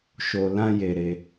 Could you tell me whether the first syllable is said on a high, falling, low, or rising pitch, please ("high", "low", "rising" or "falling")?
low